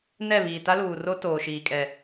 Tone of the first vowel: falling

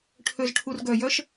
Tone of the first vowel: low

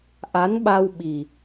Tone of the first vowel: rising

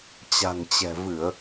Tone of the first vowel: low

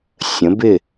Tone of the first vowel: rising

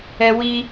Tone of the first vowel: high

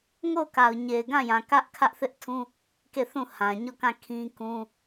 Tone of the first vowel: falling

